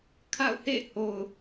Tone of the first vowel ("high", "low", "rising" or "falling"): falling